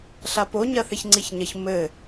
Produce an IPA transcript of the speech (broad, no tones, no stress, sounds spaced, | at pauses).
ɬ a p o ɲ ɐ θ e ç ŋ͡ǀ i ç ɲ ɐ ç m ɘ